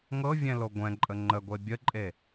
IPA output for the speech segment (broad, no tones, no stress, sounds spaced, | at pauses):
ŋ ɤ vʲ ɛ̃ l o ɡʷ ɛ̃ ǃʼ ə ŋ͡ǃ ə ɡʷ e bʲ ə ǃʼ e